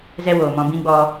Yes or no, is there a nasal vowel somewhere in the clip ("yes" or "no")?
yes